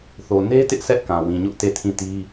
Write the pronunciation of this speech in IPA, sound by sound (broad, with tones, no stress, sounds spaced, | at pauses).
θ o˨ n e˦ t ɪ˦ ʔ s ɛ˦ ʔ k ã˨ w ĩ˨ ɲ ʊ˦ ʔ t e˦˨ tʰ ĩ˦˨ t i˦